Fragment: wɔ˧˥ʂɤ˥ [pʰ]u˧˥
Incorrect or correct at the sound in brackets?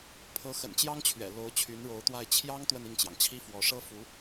incorrect: f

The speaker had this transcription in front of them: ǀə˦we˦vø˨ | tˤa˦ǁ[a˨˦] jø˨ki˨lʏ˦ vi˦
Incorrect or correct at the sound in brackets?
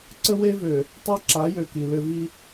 correct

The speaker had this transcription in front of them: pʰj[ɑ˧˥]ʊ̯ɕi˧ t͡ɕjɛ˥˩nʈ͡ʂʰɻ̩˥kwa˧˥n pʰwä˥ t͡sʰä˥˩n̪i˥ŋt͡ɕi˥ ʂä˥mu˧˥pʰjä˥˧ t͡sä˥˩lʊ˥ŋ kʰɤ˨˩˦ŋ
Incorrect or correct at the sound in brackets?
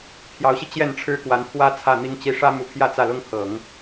correct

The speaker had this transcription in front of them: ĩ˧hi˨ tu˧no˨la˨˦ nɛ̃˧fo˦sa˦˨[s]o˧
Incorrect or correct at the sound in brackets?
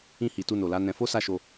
incorrect: ʃ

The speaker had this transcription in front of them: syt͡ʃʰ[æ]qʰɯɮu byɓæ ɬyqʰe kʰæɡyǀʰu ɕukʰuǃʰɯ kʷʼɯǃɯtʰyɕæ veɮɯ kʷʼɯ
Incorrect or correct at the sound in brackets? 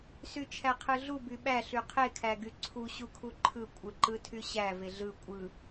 correct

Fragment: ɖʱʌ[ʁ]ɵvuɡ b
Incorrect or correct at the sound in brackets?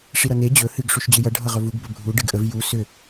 correct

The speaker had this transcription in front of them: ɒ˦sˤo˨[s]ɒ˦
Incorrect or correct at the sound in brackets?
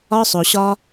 incorrect: ɕ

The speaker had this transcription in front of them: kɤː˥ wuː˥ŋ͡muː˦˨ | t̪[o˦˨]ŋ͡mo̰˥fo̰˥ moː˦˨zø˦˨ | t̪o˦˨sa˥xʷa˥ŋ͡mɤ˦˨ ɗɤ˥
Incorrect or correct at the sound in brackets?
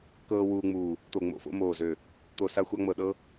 correct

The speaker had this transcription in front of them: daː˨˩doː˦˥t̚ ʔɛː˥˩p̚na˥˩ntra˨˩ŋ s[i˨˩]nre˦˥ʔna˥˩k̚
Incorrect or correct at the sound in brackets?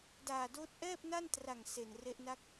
incorrect: e˨˩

